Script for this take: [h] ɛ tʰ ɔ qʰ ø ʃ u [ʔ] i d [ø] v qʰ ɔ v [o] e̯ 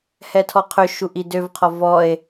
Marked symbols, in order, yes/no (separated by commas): yes, yes, yes, no